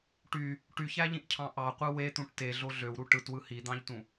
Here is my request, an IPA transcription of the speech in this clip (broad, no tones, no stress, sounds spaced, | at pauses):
ʈ y | ʈ y ç æ ʎ ĩ ʔ cʰ ɑ̃ ʔ ɑ qʷ ɯ w e t̪ ũ ʈ t e ɮ o ɮ ø w ɾ u ʈ ɯ t w ɯ h i d̪ ɑ̃ ʎ t ũ